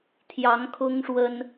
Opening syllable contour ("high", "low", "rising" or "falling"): rising